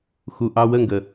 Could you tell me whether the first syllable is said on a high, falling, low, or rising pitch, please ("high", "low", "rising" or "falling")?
low